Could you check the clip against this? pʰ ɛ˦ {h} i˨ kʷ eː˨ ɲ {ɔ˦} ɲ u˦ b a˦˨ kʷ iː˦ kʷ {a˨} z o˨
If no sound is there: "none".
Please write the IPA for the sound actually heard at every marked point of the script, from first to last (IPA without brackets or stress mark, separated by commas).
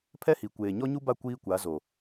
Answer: h, ɔ˦, a˨˦